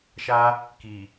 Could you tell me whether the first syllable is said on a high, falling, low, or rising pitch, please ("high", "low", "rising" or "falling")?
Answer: high